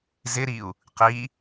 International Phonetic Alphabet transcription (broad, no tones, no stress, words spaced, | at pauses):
zɪɾiu̯ | qi